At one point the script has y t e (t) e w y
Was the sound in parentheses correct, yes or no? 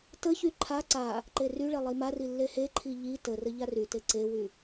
no